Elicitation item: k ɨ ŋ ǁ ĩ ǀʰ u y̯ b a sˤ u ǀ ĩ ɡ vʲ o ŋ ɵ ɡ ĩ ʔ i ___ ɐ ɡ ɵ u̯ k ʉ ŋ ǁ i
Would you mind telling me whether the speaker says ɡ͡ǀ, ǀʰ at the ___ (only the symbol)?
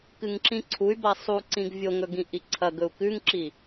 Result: ǀʰ